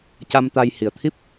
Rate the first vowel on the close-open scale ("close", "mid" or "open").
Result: open